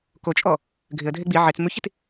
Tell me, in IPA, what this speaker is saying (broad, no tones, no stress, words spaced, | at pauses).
kot͡ʃʼɔ | ɡʱɪə̯dʱe ɡ͡bi ʕet͡s mʉçit